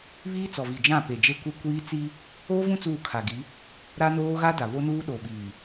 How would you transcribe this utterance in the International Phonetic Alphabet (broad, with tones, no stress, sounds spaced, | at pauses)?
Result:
β iː˦ t͡s ɔ˨ v i˨ d͡ʒ ã˦˨ p e˨ d͡ʒ e˦ kʷ e˦ kʷ iː˦ t͡s i˦ | oː˦ v ũ˦ t͡s uː˦˨ kʰ a˨ ɡ i˨˦ | ɾ a˦ n oː˦ ɣ a˦ d a˨ β o˦ n uː˦ ɗ o˨ ɓ iː˨